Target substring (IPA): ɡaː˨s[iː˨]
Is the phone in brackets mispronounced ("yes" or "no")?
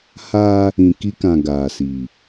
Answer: no